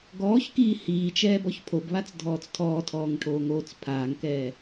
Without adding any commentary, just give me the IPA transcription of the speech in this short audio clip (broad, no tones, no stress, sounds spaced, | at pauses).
ɡ ɔː ç k iː h iː t͡ʃ ɛː b ɔ ç pʰ o b β a t͡s dʱ ɔː t͡s tʰ ɔː tʰ ɔː ŋ ʈʰ oː ŋ oː t͡s pʰ aː ŋ k ɛː